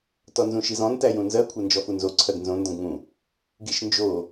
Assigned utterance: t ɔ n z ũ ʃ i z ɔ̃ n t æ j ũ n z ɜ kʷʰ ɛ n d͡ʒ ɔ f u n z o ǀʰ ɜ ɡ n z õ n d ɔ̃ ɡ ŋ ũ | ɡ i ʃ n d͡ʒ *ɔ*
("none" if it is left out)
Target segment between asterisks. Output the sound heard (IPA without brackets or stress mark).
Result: o